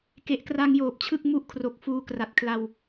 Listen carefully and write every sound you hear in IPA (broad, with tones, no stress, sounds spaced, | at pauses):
k e˨˩ ʔ k r a˧ ŋ j oː˨˩ p̚ t͡ɕʰ ɯ˥˩ k̚ m u˥˩ ʔ kʰ r o˨˩ k̚ f uː˧ k r a˨˩ t̚ kʰ l a˧ w